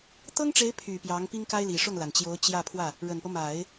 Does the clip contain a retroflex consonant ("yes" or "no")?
yes